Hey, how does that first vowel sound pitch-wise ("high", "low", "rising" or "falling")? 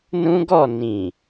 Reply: high